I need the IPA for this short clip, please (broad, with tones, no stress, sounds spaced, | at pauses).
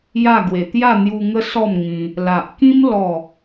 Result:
j a˥˧ ɡ w e˧ t̪ j a˥˧ n̪ j u˧ ŋ ə˦ s ɔ˥˧ m ŋ ĩ˧ | l a˨ ʔ k ĩ˦ m l ɔ˥˧